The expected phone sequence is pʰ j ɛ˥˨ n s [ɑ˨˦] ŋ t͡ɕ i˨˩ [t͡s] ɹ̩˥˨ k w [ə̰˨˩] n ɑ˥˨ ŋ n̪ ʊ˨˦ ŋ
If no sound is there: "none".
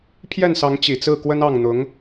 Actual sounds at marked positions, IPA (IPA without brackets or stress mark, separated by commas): ɑ˨˦, t͡s, ə˦